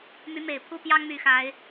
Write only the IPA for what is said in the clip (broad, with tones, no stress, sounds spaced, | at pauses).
m y˨˦ m e˨˩ ɪ̯ pʰ u˦ p j ɑ˦ ŋ m y˨˦ x a˨˦ ɪ̯